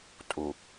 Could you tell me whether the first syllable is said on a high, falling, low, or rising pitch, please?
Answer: low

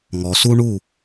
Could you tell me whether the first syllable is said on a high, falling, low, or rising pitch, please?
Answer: low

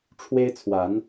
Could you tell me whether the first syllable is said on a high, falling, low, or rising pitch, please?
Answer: high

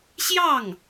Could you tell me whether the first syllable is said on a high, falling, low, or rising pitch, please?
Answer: falling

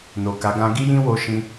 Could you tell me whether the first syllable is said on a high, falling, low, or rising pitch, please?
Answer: low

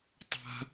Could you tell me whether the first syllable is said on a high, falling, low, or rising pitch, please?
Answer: high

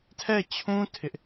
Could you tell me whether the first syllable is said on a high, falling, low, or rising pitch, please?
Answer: falling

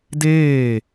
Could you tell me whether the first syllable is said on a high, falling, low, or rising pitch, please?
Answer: falling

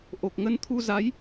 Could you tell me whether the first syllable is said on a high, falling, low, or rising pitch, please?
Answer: low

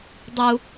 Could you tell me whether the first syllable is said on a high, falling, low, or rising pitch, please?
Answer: high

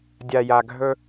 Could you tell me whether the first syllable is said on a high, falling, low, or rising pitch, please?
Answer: low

